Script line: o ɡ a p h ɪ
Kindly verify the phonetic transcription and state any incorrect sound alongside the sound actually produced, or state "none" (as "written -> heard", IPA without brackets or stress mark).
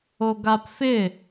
h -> f